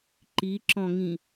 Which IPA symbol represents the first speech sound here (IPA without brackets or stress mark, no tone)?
ǃ